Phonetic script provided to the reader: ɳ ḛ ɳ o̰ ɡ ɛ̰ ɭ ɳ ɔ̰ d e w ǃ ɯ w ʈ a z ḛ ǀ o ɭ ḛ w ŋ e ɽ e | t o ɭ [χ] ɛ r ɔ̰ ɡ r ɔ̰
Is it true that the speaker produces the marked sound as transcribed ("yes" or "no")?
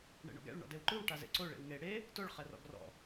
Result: yes